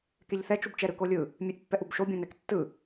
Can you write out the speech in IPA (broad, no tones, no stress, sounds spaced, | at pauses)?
k ɛ ʎ θ ɛ t͡ʃ u b t͡ʃ ɛ ɾ ɯ k o lʲ ɯ | mʲ e ʔ pː ɛ ʔ u b ʃ o bʲ õ n ɛ k tː ɯ